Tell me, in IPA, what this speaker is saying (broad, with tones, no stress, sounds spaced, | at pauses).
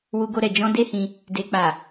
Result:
w u˧ ɡ o˧ ɾ ɛ˨ d͡ʒ ɔ̃˧ d e˦ h ĩ˧ | d e˨ k͡p a˨